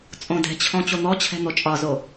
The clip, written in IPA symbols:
t͡sʼ õ d ɛ̤ t͡ɕʰ ɔ̃ t͡ɕ o n̪ ɔ t͡ɕʰ ɛ̤ n̪ o t͡ʃʼ ɒ z o

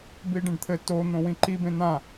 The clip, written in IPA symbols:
b i ɖ ẽ ɖ t̪ʰ ɘ t o n̪ õ w ĩ ǃ i b ẽ n̪ ã

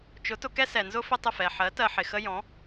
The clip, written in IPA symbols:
t͡ʃ ʊ˩˥ t ʊ˧ k ɛ˥ s ɛ˩ n z ʊ˥ f ɪ˥ tˤ ɪ˥˩ f ɛ˩ ħ ɜ˩˥ t ɜ˧ ħ ɪ˩ x ə˥ j ɔ̃˩˥

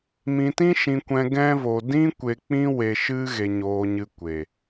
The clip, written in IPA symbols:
m ĩ˧ t ĩ˦ ʃ ĩ˧ kʷ ɛ̃˧ ɡ ɛ̃˦ v o˧ d ĩ˦ kʷ e˧ k͡p ĩ˦ w e˧ ʃ ɨ˦ ɣ e˧ ɲ oː˧ ɲ ɨ˧ kʷ e˨

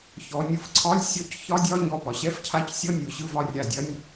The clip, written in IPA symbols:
ç ɔ˩˧ nʲ ɯ˧˩ f ǀʰ ɒ˧˥˧ lʲ sʲ ɔ˧˥˧ c ç ɒ˧˥˧ dʲ ɒ˧˥˧ ɲ ɔ˧˩ p ɒ˩˧ ɕ ɛ˧˥˧ f cʰ a˧˥˧ c sʲ ɔ˧˥˧ nʲ o˩˧ ɕ ɯ˧˥˧ v ɒ˥˨ rʲ a˧˩ dʲ ɐ˧˥˧ nʲ

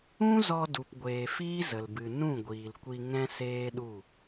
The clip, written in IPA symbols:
ũ˦ z ɔ˧ d u˨ p ɡʷ eː˨ f iː˦ z ə˨ l b ɨ˨ n ũ˦˨ ɡʷ iː˨ l kʷ i˧ ŋ ɛ̃˦ s eː˦ ɗ u˦˨

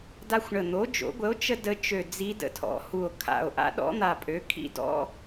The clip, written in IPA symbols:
d a˥ xʷ ɳ ə˧˩ n̪ o˩˥ d͡ʒ o̰˩˥ ɡʷ ə˩˥ o̯ t͡ʃ ə˥ d ə˧˥ t͡ʃ ø˧˩ d͡z i˧˥ d ə̰˧˩ tʰ ɔ̰˩˥ h u˧˩ o̯ kʰ a̰˧˩ o̯ ʔ a̰˧˥ ɗ ɔ̰˧˥ n̪ a˧˩ pʼ ø˩˥ kʰ ḭ˥ d ɔ̰˧˥

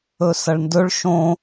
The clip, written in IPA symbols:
ɵ s ɐ ɭ n d ɵ ɭ ʃ õ

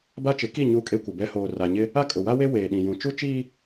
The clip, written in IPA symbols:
b a˦ t͡ʃ ɪ˨˦ k i˦˨ ɲ u˦ kʼ e˦ kʷ ɪ˨ b ɛ˦ h oː˨ r a˨ ɲ ɪ˦ | a˦ kʼ ʊ˨ w a˦ w e˦ w eː˨ ɗ ĩ˨ j ũ˨ t͡ʃ u˦ t͡ʃ iː˦

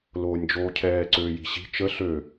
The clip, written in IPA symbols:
l oː nʲ d͡ʒ oː cʰ ɛː ǀ øː j i̤ ɕ i̤ t͡ʃ ə ɬ ø

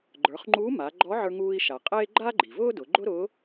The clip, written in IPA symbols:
ɡ͡ǃ ə˞˩˧ χ ŋ͡ǃ uː˧˥ m a˩˧ ɡ͡ǃ ɔ˧˥ ʕ ə˞˧ ŋ uː˧ i̯ ʃ a˩ qʼ eː˥ ɡ͡ǃ a˥ ɡ͡ǃ i˩ v ʊː˥ d ʊ˩˧ ɡ͡ǃ ʊ˥ ɾ ʊː˧˥

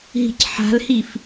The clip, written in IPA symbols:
ɦ i̤ c ħ a̤ l h i f

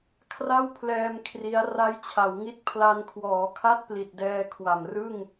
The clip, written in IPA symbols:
kʰ r a˥˩ w pʰ l ɛː˧ m kʰ r i˦˥ a̯ r a˦˥ j t͡ɕʰ a˩˦ w ŋ i˦˥ t̚ pʰ l a˧ n kʰ w ɔː˩˦ kʰ a˥˩ t̚ p l i˨˩ t̚ d ɛː˧ kʰ w a˨˩ m r ɯ˥˩ ŋ

